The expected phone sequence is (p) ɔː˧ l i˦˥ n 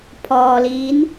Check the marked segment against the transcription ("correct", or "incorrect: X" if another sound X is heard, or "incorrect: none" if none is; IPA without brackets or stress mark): incorrect: pʰ